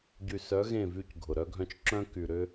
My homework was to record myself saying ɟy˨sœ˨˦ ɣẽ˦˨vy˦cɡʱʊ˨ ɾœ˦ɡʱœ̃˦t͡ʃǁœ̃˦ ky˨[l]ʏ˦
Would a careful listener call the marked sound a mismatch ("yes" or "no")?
yes